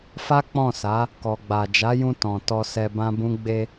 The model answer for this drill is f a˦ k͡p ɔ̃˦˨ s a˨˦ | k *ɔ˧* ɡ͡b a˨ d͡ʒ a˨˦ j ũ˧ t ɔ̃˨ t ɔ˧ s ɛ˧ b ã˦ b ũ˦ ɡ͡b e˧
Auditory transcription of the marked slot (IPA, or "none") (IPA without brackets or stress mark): ɔ˨